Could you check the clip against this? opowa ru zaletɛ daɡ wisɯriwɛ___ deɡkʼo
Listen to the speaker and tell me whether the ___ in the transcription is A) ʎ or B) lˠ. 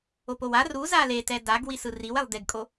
B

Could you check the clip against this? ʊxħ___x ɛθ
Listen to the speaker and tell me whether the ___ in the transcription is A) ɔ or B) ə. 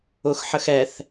B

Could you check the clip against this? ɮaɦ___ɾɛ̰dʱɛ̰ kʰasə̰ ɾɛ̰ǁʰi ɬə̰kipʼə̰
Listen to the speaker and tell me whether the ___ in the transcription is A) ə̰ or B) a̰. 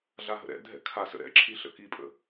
A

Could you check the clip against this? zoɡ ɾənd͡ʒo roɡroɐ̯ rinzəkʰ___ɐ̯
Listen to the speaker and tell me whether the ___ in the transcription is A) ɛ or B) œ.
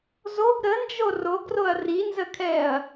A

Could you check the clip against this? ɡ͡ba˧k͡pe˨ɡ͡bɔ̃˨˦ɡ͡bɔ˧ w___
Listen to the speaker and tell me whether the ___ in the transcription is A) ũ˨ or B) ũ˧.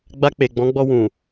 A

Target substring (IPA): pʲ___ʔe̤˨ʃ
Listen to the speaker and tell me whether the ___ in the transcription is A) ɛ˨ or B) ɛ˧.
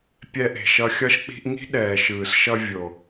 B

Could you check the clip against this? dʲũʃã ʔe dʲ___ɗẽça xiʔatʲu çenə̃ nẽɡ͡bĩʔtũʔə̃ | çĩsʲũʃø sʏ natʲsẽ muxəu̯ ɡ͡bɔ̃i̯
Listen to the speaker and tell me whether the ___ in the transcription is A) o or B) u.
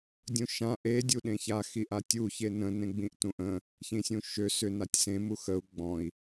B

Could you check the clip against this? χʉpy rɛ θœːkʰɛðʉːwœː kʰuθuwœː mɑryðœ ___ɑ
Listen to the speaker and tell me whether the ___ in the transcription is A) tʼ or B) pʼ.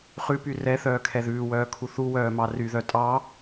A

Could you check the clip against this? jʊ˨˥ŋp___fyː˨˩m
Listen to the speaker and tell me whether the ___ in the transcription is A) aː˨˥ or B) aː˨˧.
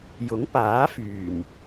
A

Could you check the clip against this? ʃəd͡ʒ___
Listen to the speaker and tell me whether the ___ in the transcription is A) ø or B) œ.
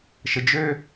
A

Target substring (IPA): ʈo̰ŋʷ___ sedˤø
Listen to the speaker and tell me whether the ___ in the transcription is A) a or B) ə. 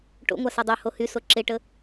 A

